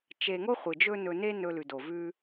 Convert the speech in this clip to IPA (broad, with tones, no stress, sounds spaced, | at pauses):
t͡ʃ e˨ ŋ o˦ χʷ ɨ˨ d͡ʒ ɵ˦ n ɵ˧ n e˦ n ɵ˧ l ʉ˨ d o˨ v ʉ˦